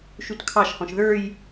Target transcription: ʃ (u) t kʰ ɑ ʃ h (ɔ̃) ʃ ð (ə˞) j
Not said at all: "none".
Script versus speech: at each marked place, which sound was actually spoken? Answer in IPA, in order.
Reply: u, ɔ̃, ə˞

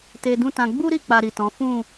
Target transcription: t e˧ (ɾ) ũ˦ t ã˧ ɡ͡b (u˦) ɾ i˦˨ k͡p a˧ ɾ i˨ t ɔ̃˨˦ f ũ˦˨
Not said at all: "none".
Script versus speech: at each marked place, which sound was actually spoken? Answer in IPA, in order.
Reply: d, u˦

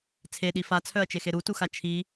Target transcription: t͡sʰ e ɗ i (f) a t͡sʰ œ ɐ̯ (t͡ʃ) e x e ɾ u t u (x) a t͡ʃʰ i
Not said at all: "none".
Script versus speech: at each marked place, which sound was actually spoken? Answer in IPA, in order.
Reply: f, t͡ʃ, x

